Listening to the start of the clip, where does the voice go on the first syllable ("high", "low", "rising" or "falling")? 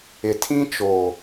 low